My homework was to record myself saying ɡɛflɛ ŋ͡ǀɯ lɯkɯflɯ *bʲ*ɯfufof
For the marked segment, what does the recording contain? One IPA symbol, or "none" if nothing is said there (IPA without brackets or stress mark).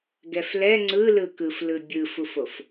bʲ